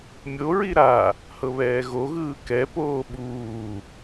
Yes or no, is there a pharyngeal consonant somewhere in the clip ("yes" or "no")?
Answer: no